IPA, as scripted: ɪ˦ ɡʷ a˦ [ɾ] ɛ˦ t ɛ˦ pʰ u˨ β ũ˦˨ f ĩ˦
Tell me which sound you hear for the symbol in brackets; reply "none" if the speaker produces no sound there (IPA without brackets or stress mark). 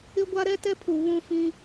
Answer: ɾ